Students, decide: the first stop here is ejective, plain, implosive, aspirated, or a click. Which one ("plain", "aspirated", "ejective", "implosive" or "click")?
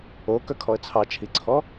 plain